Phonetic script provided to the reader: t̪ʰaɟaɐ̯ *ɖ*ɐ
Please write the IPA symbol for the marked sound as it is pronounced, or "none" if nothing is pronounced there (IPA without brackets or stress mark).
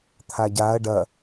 ɖ